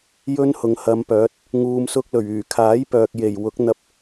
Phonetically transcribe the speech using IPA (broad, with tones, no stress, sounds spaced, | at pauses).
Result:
j ɵ˥ n h ʊ˨˧ ŋ h ɐ˨˧ m p œː˨˥ t̚ | ŋ uː˨ m s ʊ˧ k̚ l ɵ˨˩ ɥ yː˨˩ kʰ aː˨˥ j p œː˨ k̚ j e˨˩ j w ʊ˨˥ k̚ n̪ ɐ˧ p̚